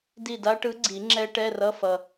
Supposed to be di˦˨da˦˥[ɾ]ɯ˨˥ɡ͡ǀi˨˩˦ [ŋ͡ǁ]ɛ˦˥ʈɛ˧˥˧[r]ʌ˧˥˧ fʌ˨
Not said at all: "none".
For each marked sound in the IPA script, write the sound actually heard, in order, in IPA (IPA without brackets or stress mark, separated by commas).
ʈ, ŋ͡ǁ, r